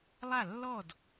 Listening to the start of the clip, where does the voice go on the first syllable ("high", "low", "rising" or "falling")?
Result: falling